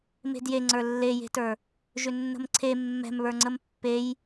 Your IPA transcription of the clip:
m e̤ d j e ŋ͡ǀ ə˞ lː e j e̤ t ə˞ | ʒ ʏ nː ə̤ m ǀʰ e mː ɛ̤ m β ə˞ ŋ͡ǀ ə m pː e j

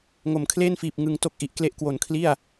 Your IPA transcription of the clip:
ŋ o˩˦ m kʰ l eː˥˩ n f iː˨˩ p̚ ŋ ɯ˧ ŋ t o˥˩ k̚ ʔ i˨˩ ʔ k l e˦˥ ʔ k w o˨˩ n kʰ l i˥˩ a̯

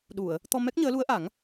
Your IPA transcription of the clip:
ɗ u˨˩˨ ə̯ | t̪ ɔ˧ m ɛ˦˥ k̚ ɲ əː˧˥ l u˧˥ ə̯ ʔ a˨˩˦ ŋ

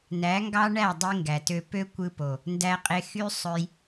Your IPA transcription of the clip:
n æ˨˦ ŋ ɡ ɑ˦ ɳ æ˦˨ dˤ i˧ ŋ ɡ æ˨ t ø˧ p ø˦ kʷ ɯ˧ p o˨ | n d æ˧ qʼ e˧ x y˦ sˤ ø˧ j

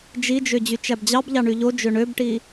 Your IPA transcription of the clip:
d͡ʒ i d͡ʒ ø d͡ʑ y t͡ʃ æ b d͡ʑ ɑ b ʎ ɑ ɳ y ʎ o d͡ʒ ø ɳ ø b ʈ i

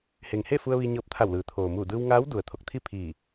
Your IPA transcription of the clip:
h e˩ ŋ h e˥˨ f u˧ ə̯ ʋ i˧ ɲ ɤː˧ p̚ t̪ʰ a˧˩ w l ɯː˩ t̪ʰ oː˩ m uː˧˩ d ɯː˧ w ŋ aː˧˥ w d u˩ ə̯ t̪ʰ o˧˩ k̚ t̪ʰ i˥˨ pʰ iː˧˩

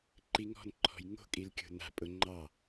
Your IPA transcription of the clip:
ǃ i ŋ ɔ̤ n ǃʰ ɔ̤ j ŋ o̤ kʼ i l kʲ o̤ n a̤ pʼ ʊ ŋ͡ǃ ɑ

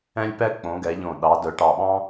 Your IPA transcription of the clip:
ɛ̃˥ lʲ p ɛ˥ k͡p õ˨˦ ɡ ɛ˨˦ ʎ õ˧˩ ɗ ɑ˨˦ d œ˨˦ ʈ ɑ˧˩ ɓ ɑ̃˥

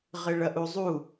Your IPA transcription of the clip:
ʁ ɪ ɭ ɐ ʔ u zˤ u

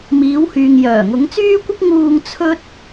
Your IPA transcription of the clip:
m iː˨˧ w h yː˨ ŋ j œː˨˩ ŋ ʊ˨˧ ŋ t͡s yː˥ kʷ ɪ˥ k̚ ŋ uː˧ ŋ t͡sʰ ɵ˥ t̚

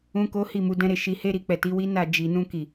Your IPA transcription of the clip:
ũ˦ k o˦ h i˦˨ m u˨˦ d ɛ̃˧ ɾ e˧ ʃ i˧ h e˦ ɾ i˧ k͡p ɛ˨ t i˨˦ w i˦ n a˦˨ d͡ʒ i˨ n ũ˧ k i˨

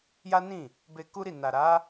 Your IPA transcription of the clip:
j a˦ n ĩ˦˨ | b e˧ k u˦ ɾ i˦˨ n a˨ ɾ a˨˦

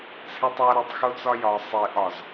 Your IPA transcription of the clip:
t͡sʰ e tˤ ɒ ɾ e tˤ x o t͡s ɒ j ɒ sˤ e ʔ ɒ z

